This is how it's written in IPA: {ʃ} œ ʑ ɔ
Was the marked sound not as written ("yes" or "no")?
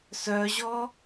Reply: yes